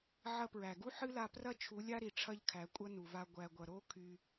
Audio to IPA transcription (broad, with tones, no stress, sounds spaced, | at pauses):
ʕ ɐ˧ p ɹ æ˨ ɡ u˦ ħ ɨ˦ l a˧ p r ɐ˦ t͡ʃʰ u˨˦ lʲ a˦ ɾ i˨ ʈ͡ʂʰ ɐ˦ ʎ kʰ æ˨˦ kʷʼ ɐ˦ n u˨ v a˧ ɡʷ æ˧ ɡʷ ɐ˧ ɾ o˦ kʰ y˧